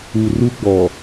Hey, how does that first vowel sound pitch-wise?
low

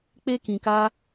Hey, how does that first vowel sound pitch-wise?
high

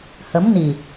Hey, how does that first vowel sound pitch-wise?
rising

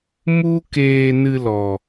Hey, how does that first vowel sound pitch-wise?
high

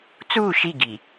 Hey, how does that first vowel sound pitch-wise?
falling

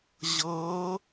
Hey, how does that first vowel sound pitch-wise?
rising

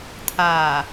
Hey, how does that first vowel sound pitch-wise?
low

